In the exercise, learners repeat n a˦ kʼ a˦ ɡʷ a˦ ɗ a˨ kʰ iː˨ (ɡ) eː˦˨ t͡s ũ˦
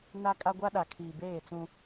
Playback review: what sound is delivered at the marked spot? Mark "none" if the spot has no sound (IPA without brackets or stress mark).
b